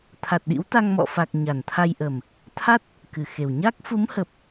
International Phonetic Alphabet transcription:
t̪ʰ a˨˩ t̚ ɗ ḭ˧˥ w t̪ a˧ ŋ m ɔ̰˧˨ f a˨˩ k̚ ɲ a˨˩ n t̪ʰ a˧ j ʔ ə˨˩ m | t̪ʰ a˦˥ t̚ | k ɨ˨˩ x e˨˩ w ɲ a˦˥ k̚ f u˨˦ m h ə˨˩ p̚

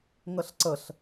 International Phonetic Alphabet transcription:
ŋ ə ɬ ǀ ə ɬ

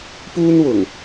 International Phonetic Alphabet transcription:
p uː˥ n w ʊ˨˩ ŋ

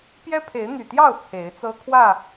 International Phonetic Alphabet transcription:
p j ɛ˦ pʰ e˨˦ ɪ̯ n̪ y˨˩ t̪ j ɑ˥˨ ʊ̯ t͡sʰ e˨˦ ɪ̯ t͡s ɤ˦ kʰ w ä˥˨

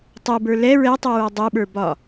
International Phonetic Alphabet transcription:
tˤ u b ə˞ l ɛ ɹ ɛ tˤ u ɹ ə˞ dˤ u ɓ ə˞ b ɒ

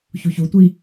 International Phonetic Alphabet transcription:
ç u ç u tʷ i

